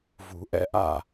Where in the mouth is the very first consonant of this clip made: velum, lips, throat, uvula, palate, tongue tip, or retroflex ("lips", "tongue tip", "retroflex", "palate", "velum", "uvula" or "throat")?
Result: lips